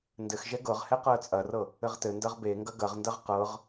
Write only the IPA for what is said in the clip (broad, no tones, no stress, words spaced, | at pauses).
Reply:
ndɘxʒɛ ɡɤʁhɛ qɤə̯t͡sʼɐrɤ | ɘʁtɘndɐʁ beŋɡɐ ɡɐʁndɐʁ qɤʁ